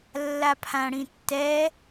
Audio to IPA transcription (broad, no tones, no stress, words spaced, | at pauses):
lːapʰãɽĩtːɛ